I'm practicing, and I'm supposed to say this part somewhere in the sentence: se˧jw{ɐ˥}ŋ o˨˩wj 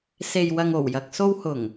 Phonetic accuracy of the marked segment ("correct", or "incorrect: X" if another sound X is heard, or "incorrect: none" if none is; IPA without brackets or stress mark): incorrect: ɐ˧